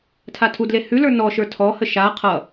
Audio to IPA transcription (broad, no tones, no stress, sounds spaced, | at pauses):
tʰ a tʰ u d l e h ʉ l ə˞ n ɔ ʃ ə˞ tʰ ɔ h ə ʃ a qʰ ʌ